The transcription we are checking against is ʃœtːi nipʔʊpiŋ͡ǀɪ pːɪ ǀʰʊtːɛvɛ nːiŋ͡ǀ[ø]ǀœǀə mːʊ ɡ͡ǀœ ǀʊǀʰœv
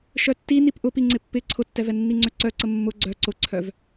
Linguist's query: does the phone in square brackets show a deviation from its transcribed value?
no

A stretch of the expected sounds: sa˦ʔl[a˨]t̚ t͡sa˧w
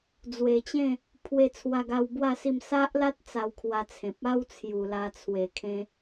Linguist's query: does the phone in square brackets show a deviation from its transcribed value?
yes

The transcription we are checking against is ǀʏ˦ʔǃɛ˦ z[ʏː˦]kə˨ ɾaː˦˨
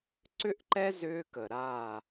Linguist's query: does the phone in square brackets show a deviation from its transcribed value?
no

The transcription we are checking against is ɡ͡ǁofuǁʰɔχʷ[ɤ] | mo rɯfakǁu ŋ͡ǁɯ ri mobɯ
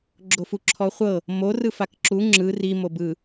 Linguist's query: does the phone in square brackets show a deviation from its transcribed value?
no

